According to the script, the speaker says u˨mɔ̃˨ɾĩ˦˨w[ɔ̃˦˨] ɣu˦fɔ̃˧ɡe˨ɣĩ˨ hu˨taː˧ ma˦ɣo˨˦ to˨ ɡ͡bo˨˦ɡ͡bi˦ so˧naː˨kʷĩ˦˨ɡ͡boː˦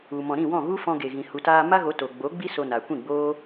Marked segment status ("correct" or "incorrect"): correct